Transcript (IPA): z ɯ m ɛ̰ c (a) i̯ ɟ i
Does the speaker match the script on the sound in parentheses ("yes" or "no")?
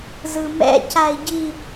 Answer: yes